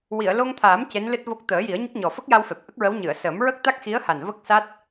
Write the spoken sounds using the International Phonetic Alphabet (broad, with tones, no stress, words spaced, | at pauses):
wi˨˩˨ə̯lo˧ŋt̪ʰaː˨˩˦m ce˧˥nlɨ˦˥t̚vo˦˥k̚ t̪əː˨˩˦ji˨˩˦ə̯ ɲə˦˥k̚ɲɔ˨˩ fə˦˥k̚ja˧w fɛ˨˩p̚ʔə˦˥k̚ɹə˧˥w ɲɨ˨˩˨ə̯səː˨˩˦m ɹə˦˥k̚t̪a˦˥k̚xi˧˥ə̯ha˨˩n və˦˥k̚sa˦˥t̚